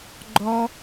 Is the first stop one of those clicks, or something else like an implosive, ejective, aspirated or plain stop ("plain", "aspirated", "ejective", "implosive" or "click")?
click